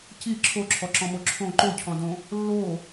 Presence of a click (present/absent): present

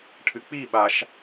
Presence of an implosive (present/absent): present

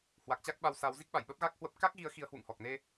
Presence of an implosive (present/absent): present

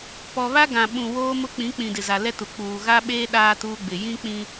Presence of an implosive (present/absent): present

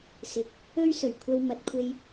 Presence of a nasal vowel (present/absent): absent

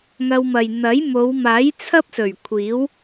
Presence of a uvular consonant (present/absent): absent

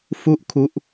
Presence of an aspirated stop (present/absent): present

